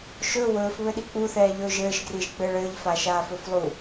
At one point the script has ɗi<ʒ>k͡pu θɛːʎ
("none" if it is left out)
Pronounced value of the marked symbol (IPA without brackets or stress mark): none